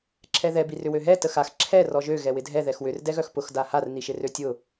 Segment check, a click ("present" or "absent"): present